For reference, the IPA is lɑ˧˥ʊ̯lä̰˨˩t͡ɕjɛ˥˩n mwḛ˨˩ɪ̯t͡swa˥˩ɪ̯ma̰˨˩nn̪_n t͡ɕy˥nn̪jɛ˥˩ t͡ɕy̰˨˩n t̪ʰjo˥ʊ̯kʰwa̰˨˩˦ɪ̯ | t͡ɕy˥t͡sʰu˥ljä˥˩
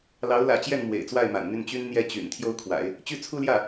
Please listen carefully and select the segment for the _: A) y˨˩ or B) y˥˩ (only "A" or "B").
B